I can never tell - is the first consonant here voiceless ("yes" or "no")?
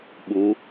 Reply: no